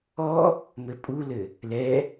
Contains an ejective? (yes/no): yes